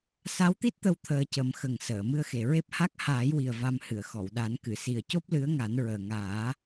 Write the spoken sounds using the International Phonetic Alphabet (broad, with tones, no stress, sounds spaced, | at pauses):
s a˧˥ w t̪ i˦˥ t̚ t̪ ə˧ w t̪ʰ əː˧ c ə˨˩˦ m x ə˨˩ ŋ s əː˨˩˨ m ɨ˧ ə̯ x e˨˩ ɹ e˦˥ p̚ h a˦˥ k̚ h aː˨˩˦ j w i˨˩ ə̯ v a˧ m h ɨ˨˩˨ ə̯ x ɔ˨˩˨ w ɗ a˨˩˦ n k ɨ˨˩˨ s i˨˩ ə̯ c o˦˥ p̚ l ɨ˧˥ ə̯ ŋ a˨˩˦ n ɹ əː˨˩ ŋ aː˨˩˦